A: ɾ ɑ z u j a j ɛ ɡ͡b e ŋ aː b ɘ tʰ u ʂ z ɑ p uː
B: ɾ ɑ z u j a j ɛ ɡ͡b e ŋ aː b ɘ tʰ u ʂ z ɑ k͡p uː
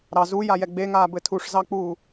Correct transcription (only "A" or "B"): B